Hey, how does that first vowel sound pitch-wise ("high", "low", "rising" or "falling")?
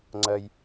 low